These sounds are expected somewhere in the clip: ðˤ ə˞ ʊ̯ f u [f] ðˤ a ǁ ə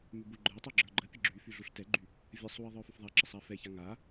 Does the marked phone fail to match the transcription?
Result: no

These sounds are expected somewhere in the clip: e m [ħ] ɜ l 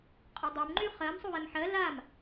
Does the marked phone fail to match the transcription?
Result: no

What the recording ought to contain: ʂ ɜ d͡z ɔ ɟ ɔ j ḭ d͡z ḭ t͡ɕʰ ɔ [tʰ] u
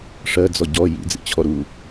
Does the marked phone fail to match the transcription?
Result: yes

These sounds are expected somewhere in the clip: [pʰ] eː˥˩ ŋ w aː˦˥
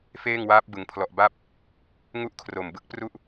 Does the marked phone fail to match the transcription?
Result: yes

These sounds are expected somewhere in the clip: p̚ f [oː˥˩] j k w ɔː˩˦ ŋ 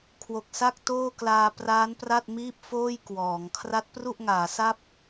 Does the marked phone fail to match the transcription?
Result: no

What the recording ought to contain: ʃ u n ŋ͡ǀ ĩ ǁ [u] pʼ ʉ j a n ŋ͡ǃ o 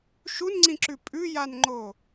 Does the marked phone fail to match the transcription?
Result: yes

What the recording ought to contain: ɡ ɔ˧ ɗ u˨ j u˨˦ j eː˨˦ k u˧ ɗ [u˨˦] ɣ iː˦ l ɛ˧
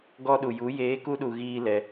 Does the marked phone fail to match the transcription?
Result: yes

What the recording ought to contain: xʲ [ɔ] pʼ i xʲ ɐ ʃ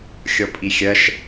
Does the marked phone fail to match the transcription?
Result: no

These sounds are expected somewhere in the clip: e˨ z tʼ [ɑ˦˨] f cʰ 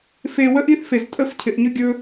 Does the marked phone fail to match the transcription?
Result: yes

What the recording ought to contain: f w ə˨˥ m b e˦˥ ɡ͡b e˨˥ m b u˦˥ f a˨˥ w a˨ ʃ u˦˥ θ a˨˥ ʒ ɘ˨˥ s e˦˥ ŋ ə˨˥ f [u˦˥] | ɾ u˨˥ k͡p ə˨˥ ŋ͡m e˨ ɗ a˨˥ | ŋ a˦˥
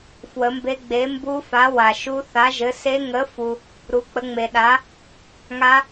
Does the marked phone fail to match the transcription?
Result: yes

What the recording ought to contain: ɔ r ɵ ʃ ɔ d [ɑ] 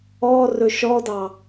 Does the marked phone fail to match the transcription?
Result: no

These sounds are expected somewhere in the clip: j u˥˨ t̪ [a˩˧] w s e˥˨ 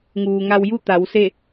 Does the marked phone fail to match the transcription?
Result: no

